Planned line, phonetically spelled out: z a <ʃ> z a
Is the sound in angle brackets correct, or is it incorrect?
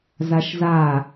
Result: correct